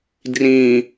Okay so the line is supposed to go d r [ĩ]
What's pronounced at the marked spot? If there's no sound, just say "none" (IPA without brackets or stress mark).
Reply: ĩ